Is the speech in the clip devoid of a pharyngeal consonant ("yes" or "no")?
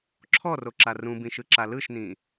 yes